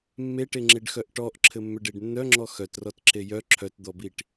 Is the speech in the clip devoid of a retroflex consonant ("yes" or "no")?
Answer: no